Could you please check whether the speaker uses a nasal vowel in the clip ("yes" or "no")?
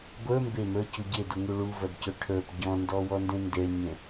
yes